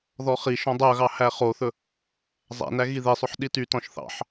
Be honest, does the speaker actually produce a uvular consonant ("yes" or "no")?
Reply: yes